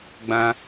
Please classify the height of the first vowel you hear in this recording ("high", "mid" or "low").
low